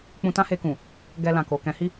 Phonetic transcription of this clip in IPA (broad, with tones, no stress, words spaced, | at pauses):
k͡pũ˧tã˦he˧kũ˨ | ɡɛ˧lã˨ko˨ kɛ̃˨˦hi˦